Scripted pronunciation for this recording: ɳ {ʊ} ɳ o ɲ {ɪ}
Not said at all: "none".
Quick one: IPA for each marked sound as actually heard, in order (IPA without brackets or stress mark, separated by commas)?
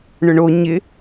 ʊ, ɪ